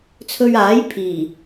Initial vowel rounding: rounded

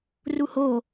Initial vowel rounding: rounded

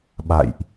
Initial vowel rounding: unrounded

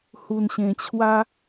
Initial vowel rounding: rounded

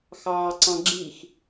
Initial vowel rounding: unrounded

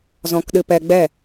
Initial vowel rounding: rounded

